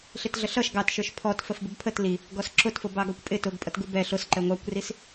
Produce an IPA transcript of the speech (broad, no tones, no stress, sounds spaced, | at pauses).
ɬ ɪ t ɮ ə ɬ ʌ ʃ ɡ ɑ t ʃ ə˞ ʃ pʰ ɔ t f ə f b ɪ b pʰ ə t l i | ɡ ɔ s ǁ ʊ t f ʊ b ɑ ɡ ɔ kʷ pʼ ɪ t ʊ ɡ pʼ ʌ t ɡ u b ɛ ɬ ʊ s ǃ ɛ ŋʷ ɑ kʷ r i s